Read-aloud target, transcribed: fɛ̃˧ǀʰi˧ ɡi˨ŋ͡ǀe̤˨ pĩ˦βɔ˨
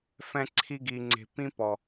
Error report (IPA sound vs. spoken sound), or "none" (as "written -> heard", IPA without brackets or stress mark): β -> p